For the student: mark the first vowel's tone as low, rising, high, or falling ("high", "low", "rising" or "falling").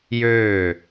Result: falling